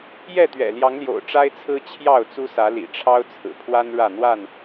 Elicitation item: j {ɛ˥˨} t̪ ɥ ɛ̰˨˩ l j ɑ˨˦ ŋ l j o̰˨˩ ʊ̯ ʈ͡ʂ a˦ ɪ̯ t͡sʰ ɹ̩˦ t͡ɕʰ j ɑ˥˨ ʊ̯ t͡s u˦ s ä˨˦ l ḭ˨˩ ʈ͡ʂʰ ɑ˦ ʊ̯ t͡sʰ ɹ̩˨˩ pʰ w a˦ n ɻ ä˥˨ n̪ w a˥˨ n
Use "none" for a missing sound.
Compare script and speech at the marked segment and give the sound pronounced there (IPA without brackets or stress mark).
ɛ˥˨